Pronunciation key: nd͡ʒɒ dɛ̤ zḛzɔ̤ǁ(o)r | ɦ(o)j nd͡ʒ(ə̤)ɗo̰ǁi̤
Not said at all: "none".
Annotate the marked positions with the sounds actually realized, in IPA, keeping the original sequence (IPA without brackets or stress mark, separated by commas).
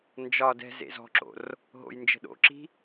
o̰, o̰, ə̤